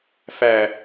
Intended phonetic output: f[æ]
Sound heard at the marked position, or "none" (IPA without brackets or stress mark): æ